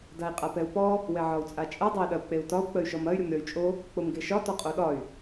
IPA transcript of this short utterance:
dai̯qʼapɛu̯pɔ | wɛʕɒu̯t͡sʼat͡ʃʼɐ dˤai̯ɗɐu̯k͡peu̯tɒu̯ k͡pəy̯ʃɔmɐy̯ ɾʲomɾʲɔy̯t͡ʃʼo | k͡pomɡeʃɒ tɔqʼoɗɒy̯

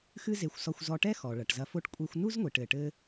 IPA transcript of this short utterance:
xɨ˥ze˧xʷsɔ˧xʷ zɔ˧ʈɛ˥xɔ˩ ɭɐ˩ʈzɐ˧fo˥ʈ kʷʼe˧xʷ nu˥zŋʷi˩ʈɘ˩ʈɘ˧

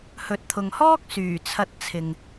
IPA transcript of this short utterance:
hɵ˨t̚t̪ʰʊ˨ŋhɔː˥k̚ syː˨˩t͡sʰɐ˧t̚t͡sʰɪ˨ŋ

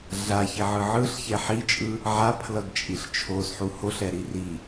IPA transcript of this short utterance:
ɮaçiʕɯ ʕɯɬçɛ ħit͡ʃʼɯ | ʕapʰlʌɡt͡ʃʼiɬ t͡ʃʰosħu hoɬɛɾi ri

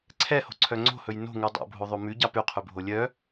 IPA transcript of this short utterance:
ǀʰɛho̤ǀʰœ ŋ͡ǀo̤hɵj no̤ŋʉ dˤo̰bʱoðˤo mʉɟɑ pʉqʰʉbʱo lʲœ

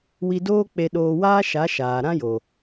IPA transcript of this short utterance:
wi˧doː˦k͡pe˧ ɗoː˧waː˦ʃa˨˦ ʃaː˨ ɾã˦jo˨

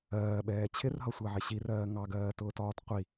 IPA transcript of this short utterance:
ɜːɓɛː t͡ɕʰɪrɦʌsʷɜʕɪ ɕirɜː ŋɑɡɜːtʊːtɒːt qʷi

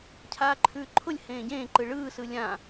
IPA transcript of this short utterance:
cʰaːǃʰʉːǃʰʊlʲ hẽːɟẽːǃɯ ɭɯːsɯ lʲã

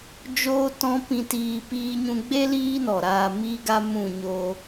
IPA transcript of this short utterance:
d͡ʒoː˦tɔ̃˦ pĩ˧tiː˧ piː˦ɲũ˦ ɡ͡be˦ liː˦nɔ˨ɾaː˧ miː˦ɡa˦ mũ˦˨ɲoː˦

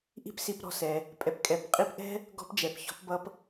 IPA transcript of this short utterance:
ʔi̤˥psi˧p ɾɔ̤˧sɛ˩ | pʼɛ˩pkʼɛ˩˧p qʼi˧pʔɛ̤˥ | ɡɔ̤˥pd͡ʒɛ˩˧pçɔ̤˧˥pbʌ˥p

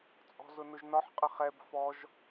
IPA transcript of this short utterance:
t͡sʼɔ̤zʊnʊʒnɒħ qʼəχɛb fɔʒ

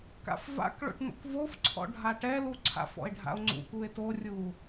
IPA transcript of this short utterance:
ka̰fva̰kɭo̰ʈ no̰kvofǀʰɔ̰ ɖʱaʈɛlu ǀʰa̰f ɔ̰e̯ɖʱa̰o̯ŋ͡ǀṵkue̯ torʲu

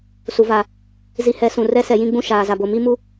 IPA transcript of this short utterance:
su˨va˨ | zi˨hɛ˨˦ sũ˨rɛ˦ sɛ˨jĩ˦ɡ͡bũ˦ ʃaː˨za˨bo˨ mi˦mu˦

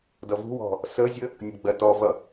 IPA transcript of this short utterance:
dʌvṳwɔ̤ | səzʲə | nʲʊɡ͡bɜtɔvʌ

